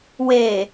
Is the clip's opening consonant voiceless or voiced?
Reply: voiced